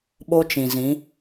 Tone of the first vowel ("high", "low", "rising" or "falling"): high